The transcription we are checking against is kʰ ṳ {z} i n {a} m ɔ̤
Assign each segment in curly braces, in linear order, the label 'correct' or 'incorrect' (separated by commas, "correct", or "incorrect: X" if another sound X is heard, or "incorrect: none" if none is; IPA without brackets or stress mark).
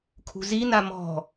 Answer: correct, correct